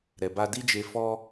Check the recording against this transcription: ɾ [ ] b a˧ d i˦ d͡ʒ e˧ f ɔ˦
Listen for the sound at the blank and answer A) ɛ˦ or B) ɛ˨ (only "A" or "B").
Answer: B